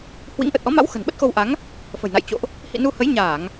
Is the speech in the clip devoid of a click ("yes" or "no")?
yes